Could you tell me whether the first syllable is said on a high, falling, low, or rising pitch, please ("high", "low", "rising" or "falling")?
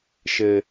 high